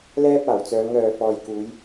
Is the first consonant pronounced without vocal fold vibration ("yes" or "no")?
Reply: no